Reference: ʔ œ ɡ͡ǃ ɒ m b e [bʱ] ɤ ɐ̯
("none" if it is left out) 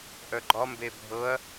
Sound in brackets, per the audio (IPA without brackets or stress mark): bʱ